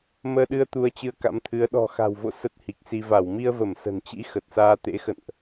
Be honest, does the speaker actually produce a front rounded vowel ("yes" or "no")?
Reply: no